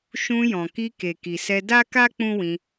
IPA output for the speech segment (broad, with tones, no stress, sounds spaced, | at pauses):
ʃ ũ˧ j ɔ̃˨ k i˧ k e˨ k i˨ s ɛ˧ d a˦ k a˦ k͡p ũ˦ w ĩ˧